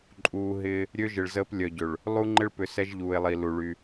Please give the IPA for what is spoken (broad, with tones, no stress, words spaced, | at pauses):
ǃʼuː˨ɦɪː˦ | ɾʲø˦ʒɪ˨ɭzəː˦p lʲœ˨ɟø˨ɭ | lˠu˦ŋ͡ǃɪ˦ɭpʏ˨sɛ˦ʒ ʎuː˨e̯lˠi˨lu˨ɭy˦